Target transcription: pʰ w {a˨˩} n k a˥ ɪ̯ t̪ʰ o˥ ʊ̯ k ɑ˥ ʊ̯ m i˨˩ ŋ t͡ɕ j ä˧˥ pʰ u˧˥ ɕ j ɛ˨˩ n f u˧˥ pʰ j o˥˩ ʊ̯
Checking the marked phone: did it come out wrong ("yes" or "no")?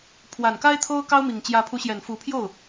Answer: no